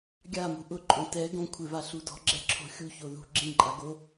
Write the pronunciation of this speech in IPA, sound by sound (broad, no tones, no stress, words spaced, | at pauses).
ɡʲamṳ ʔʊǃʼõ tɛ ɡõ kʷʰɪva ɬudɔ̤ɡ͡ǁɛ ǁʰo̤xʲuço ðṳ ɡ͡ǁĩǃʼa ɡo